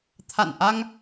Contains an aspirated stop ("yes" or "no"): yes